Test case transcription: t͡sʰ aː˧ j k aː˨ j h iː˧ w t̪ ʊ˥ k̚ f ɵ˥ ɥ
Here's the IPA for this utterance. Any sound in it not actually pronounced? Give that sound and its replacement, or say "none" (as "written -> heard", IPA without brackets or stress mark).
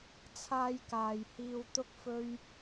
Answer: none